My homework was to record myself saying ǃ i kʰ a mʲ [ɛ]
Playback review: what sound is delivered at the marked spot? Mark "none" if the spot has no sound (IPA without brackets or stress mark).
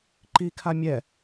ɛ